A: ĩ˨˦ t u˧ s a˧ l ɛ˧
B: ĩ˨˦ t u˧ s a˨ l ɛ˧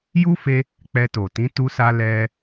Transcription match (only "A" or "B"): A